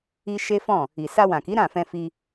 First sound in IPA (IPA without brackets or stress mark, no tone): i